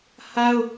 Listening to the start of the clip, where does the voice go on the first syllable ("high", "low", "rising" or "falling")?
high